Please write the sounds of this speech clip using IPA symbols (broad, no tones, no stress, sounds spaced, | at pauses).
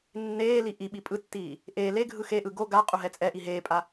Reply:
nː eː l i ʔ i ɓ i pʼ ɯ tː iː | ʔ eː l e ɡʱ ɯ x e ʔ ɯ ɡ o ɡ a qʼ u ɦ ɛ t͡sʼ ɛ ʔ i ɦ eː pʼ a